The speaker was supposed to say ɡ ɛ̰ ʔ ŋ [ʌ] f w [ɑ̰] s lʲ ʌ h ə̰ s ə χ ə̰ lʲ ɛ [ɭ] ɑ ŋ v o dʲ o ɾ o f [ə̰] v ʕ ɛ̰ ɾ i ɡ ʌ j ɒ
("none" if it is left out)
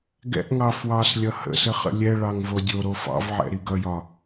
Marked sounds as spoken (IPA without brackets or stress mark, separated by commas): ɑ, ɑ, ɭ, ɑ̰